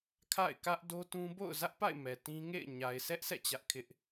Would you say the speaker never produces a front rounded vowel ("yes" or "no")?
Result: yes